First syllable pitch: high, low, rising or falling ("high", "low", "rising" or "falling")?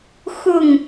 falling